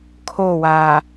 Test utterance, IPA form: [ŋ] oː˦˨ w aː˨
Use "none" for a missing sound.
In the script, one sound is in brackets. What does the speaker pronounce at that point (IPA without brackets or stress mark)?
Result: kʰ